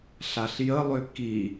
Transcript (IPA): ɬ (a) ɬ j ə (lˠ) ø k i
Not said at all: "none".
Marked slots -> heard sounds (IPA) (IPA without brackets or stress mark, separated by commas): a, lˠ